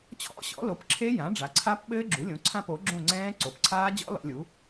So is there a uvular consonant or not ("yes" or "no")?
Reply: no